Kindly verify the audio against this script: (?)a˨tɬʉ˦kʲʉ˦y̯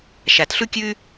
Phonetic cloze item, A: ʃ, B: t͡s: A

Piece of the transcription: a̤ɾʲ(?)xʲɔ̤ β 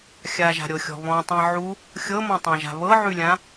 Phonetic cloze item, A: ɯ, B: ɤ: B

